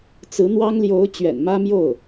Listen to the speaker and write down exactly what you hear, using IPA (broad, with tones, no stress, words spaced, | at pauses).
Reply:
t͡sɹ̩˧˥n̪wɑ˥ŋljo˧˥ʊ̯ t͡ɕɥɛ̰˨˩nmä˥mjo˥˩ʊ̯